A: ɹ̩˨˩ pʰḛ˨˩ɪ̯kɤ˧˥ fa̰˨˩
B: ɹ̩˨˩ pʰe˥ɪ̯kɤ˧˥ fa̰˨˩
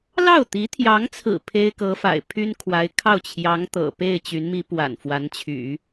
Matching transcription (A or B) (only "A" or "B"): B